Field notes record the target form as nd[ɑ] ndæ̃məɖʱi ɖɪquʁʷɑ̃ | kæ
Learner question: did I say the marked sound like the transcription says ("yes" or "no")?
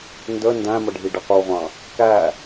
no